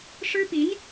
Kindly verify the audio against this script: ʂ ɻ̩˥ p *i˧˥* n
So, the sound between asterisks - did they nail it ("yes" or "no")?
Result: yes